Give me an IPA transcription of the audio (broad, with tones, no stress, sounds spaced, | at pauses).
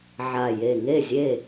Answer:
ʕ a˨˩ j e˨˩ ŋ e˥˨ zʲ e˥˨